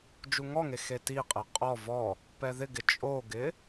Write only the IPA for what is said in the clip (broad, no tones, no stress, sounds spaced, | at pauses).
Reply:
d͡ʒ u ŋ ɔ ŋ e x e t i qʼ e qʼ ɔ v ɔ | p ɛ ð ɪ ɡ ɪ t͡ʃʼ o ɡ ɪ